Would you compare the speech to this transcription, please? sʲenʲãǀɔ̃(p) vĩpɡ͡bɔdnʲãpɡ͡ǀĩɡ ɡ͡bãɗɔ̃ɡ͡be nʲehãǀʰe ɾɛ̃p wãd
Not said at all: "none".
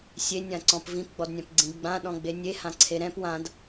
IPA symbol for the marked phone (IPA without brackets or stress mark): p